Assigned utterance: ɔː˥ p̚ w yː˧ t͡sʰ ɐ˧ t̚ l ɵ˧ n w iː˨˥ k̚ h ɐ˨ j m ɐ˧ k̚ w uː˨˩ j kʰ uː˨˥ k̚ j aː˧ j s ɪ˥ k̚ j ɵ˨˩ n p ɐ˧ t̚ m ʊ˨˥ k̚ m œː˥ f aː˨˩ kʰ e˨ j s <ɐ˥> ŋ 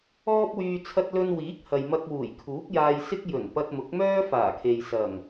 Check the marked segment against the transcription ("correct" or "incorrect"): incorrect